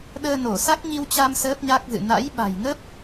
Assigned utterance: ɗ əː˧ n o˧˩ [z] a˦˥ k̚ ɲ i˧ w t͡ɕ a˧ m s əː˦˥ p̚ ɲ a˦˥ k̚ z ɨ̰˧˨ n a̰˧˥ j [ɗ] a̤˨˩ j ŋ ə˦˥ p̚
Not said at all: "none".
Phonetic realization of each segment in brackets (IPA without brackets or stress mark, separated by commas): s, ɓ